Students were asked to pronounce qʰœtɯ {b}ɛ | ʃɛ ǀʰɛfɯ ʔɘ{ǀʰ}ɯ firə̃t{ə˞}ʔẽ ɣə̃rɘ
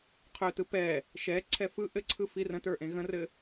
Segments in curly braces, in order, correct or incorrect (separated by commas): incorrect, correct, correct